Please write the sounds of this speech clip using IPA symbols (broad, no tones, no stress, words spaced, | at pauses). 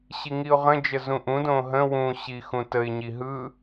ɕiŋiʊ̯ʁə̃d͡ʒə zũʔũ dõɦə̃ wũ ɕixũtəɪ̯ɲi ɦɯ